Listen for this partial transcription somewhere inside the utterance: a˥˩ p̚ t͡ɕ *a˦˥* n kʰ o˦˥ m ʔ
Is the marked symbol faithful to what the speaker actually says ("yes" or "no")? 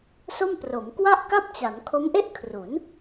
no